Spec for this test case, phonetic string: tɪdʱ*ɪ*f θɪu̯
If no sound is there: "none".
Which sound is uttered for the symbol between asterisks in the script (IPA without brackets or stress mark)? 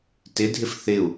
ɪ